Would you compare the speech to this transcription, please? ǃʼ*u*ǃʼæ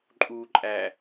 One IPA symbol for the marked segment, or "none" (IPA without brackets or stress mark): u